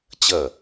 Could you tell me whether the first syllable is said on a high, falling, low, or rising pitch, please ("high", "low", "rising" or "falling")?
falling